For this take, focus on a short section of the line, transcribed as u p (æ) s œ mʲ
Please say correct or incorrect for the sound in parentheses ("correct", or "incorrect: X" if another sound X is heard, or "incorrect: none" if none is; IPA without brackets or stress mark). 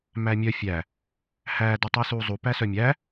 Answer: correct